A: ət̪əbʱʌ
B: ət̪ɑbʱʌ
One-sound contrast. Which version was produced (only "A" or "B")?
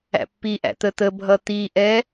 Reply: A